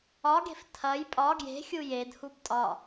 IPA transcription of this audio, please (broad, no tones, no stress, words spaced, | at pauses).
ɒɡe̤f tʰɐj pʼɒ ɡje̤xʲu jedhub tʼɒ